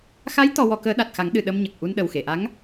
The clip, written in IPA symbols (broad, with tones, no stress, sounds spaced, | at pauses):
x a˧˥ j t̪ ɔ˧ w ɔ˧ k əː˧˥ ɗ a˨˩ t̚ x a˨˩˦ ŋ ɗ ɨ˨˩ ɗ ə˧ m ɲ ə˨˩ k̚ ʔ u˧ n ɗ ə˨˩ w x e˨˩˨ ʔ a˧˥ ŋ